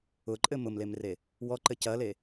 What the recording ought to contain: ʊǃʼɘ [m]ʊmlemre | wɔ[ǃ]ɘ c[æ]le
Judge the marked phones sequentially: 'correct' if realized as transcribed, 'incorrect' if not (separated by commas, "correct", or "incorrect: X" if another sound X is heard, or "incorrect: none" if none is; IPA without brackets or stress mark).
correct, correct, incorrect: ɐ